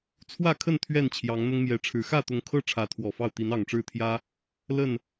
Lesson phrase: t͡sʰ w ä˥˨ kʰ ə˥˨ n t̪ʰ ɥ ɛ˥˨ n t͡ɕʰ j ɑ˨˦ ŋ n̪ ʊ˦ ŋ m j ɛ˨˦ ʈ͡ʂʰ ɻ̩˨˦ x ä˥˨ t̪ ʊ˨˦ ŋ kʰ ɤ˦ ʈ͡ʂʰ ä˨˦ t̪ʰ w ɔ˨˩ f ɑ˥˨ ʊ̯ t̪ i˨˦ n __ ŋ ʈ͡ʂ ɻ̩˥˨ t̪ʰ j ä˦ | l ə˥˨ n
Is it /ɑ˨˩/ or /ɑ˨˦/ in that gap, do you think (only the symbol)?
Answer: ɑ˨˩